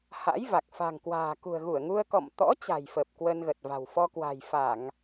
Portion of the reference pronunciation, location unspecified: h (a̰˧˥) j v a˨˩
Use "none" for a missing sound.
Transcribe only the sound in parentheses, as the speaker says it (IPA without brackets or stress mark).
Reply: a̰˧˥